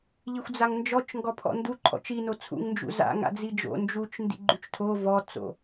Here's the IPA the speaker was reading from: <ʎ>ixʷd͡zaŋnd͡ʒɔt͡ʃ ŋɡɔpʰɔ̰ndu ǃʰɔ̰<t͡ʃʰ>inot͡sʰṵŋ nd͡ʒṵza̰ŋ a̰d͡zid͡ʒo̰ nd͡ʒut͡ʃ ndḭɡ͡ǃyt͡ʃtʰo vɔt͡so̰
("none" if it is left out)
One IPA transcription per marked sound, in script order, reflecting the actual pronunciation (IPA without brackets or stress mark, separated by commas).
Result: ʎ, t͡ʃ